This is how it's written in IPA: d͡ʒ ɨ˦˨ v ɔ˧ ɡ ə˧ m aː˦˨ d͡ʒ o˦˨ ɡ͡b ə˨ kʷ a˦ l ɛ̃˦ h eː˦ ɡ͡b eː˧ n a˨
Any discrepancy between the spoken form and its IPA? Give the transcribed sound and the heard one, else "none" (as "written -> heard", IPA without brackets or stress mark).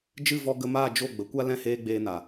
none